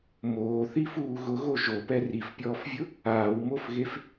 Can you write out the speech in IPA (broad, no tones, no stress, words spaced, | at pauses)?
moːθifuː ɣʊɣo ʒopɛ rifpʲɔːfvʲʊ | aːwmofɣef